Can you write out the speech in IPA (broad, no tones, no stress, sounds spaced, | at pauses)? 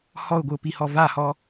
h ɔ ʊ̯ ɡʷ ɨ ʊ̯ p i h ɔ v a h ɔ